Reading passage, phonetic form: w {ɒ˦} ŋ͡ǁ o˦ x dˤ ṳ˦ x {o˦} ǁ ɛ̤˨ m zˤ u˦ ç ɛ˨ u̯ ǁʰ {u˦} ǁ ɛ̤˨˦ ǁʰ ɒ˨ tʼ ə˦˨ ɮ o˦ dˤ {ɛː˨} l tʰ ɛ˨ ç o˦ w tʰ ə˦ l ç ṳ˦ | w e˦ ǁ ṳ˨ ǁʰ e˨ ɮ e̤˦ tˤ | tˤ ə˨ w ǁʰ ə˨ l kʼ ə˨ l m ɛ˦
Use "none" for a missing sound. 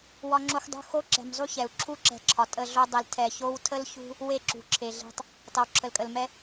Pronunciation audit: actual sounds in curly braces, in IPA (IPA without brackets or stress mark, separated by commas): ɒ˦, o˦, u˦, ɛ˨